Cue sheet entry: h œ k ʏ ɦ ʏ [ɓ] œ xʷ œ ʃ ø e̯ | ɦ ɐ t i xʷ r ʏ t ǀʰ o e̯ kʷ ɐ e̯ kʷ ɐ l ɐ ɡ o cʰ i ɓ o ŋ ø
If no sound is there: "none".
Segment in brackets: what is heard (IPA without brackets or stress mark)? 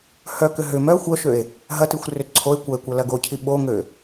m